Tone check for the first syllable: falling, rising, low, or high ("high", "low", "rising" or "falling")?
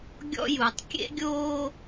high